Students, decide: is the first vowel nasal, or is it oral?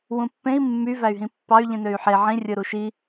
nasal